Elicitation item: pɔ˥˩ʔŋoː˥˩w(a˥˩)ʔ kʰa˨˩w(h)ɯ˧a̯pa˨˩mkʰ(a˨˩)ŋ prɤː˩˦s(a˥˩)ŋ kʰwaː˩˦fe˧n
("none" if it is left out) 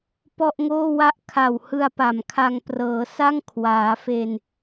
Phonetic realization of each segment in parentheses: a˥˩, h, a˧, a˥˩

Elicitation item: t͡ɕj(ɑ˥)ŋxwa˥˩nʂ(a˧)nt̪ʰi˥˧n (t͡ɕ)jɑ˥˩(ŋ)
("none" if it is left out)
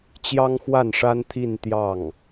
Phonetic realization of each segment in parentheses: ɑ˥, a˥, t̪, ŋ

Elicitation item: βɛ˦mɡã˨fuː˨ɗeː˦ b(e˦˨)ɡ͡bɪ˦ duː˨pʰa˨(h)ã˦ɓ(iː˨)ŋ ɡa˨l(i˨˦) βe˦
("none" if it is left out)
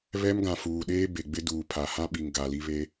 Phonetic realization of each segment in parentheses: e˨, h, i˨, i˦

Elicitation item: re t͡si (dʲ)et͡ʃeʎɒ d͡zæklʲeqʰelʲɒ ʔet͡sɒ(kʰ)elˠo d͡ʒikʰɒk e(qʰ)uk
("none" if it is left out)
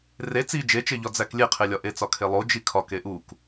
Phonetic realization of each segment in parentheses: d͡ʒ, kʰ, ʔ

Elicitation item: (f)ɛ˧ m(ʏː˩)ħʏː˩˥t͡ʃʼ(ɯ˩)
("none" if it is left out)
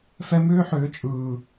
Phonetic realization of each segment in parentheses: f, ʏː˥, ɯː˩

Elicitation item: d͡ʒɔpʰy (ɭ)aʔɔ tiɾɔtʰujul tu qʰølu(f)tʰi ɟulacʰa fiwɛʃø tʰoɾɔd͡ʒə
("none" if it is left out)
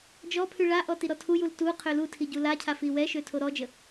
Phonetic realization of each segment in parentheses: ɭ, none

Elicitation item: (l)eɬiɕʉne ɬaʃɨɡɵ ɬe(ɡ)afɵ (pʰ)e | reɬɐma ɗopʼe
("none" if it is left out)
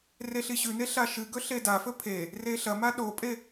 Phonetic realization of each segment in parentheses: r, d, pʰ

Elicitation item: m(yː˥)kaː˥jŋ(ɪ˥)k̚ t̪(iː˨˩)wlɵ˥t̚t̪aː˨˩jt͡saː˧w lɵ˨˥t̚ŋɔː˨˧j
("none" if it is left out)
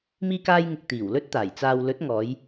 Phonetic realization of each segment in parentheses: iː˥, ɪ˧, iː˨˩

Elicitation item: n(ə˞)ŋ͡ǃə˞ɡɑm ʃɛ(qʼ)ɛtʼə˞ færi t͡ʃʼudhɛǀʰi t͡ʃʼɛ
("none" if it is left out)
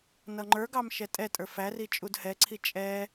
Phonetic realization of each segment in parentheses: ʌ, tʼ

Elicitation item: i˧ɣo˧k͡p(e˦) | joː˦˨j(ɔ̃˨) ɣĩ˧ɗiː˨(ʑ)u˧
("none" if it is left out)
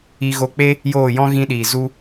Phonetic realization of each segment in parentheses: e˦, ɔ̃˦, z

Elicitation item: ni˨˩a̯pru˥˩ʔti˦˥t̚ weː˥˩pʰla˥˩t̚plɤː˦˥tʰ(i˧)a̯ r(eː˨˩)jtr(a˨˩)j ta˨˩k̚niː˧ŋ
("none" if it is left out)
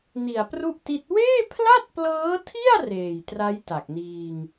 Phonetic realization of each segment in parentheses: i˥˩, eː˨˩, a˦˥

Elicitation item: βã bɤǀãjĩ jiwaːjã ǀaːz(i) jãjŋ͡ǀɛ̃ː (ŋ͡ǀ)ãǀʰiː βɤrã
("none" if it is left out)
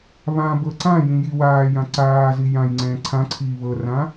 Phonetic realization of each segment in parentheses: i, ǀʰ

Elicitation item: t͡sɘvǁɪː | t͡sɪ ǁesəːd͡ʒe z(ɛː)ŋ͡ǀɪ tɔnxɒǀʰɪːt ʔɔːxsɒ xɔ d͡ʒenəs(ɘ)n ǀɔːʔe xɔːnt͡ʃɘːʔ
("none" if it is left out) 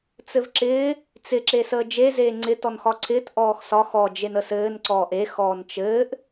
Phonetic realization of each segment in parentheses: eː, ɘː

